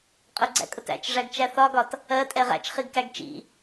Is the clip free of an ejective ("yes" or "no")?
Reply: no